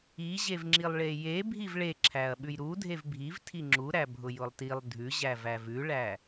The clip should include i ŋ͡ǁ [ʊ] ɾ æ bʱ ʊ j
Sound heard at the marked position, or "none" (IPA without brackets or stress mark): u